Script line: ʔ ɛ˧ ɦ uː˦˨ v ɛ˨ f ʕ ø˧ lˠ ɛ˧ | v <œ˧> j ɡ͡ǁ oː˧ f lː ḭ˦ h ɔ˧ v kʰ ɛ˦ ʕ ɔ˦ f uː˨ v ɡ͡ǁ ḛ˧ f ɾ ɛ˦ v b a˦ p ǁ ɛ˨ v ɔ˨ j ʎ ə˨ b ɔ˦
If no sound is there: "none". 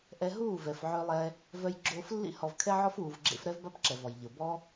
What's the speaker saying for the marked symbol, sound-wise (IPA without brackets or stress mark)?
œ˧